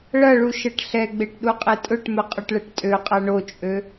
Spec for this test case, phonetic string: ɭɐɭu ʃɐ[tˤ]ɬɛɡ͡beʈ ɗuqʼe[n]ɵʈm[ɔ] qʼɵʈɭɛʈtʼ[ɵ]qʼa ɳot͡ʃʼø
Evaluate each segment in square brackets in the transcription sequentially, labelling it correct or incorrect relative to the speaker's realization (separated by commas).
incorrect, incorrect, incorrect, incorrect